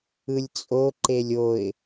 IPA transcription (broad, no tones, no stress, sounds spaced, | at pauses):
ɯ lʲ t͡sʼ o ǃ e lʲ o ɪ̯